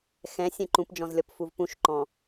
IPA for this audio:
x ɛ̃ sʲ ɛ̃ ǃ ũ p d͡ʒ ɔ̃ z lʲ ɔ p f u v p ũ ʃ ǃ ɔ̃

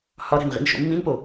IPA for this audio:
h ɒ ɾ æ̤ n ʁ ḭ n ʃ o̰ mː ĩ n p o

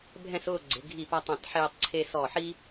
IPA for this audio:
bʱ ɛ̃˥˧ s ʊː˥˧ ɡ͡ǀ ɪ˩˧ ɡʱ i˧˩ p a˧ tˤ ã˧˩ t ħ eː˧ tˤ ǀʰ e˧ s ɔ˧˩ ħ i˥

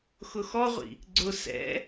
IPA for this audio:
x ʊ x ɔ ʁʷ ḭ | ɡ͡ǀ ʊ s ɛ̰

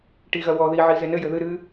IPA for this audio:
ʈ i ɣ ɐ w ɔ ð i ʕ i z e n ɘ j ɘ ð ɨ ɾ ɨ

